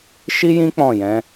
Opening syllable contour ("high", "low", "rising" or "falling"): high